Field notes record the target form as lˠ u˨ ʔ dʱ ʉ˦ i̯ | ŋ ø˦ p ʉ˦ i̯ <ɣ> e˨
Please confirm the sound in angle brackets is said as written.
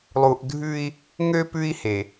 no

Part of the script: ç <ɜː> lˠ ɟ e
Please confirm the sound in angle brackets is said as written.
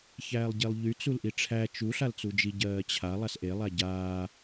no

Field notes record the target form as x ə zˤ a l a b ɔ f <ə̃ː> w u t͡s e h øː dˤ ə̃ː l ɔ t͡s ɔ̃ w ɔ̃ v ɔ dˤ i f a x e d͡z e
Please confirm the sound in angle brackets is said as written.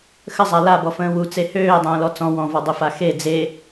yes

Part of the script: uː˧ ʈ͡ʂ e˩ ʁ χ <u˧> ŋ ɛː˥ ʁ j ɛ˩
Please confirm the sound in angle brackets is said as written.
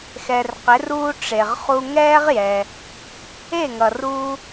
yes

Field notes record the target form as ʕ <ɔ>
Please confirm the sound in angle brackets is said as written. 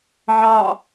no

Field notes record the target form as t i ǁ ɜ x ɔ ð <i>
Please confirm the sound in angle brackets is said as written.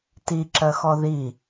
yes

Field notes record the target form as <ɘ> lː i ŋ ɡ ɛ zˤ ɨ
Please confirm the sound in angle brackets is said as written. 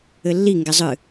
yes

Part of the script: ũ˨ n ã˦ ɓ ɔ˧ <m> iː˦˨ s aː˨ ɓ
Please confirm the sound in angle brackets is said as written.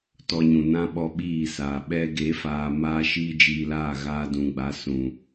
no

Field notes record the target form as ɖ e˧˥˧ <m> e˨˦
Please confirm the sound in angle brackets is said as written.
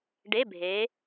no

